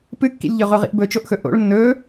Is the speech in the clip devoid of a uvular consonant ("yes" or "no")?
no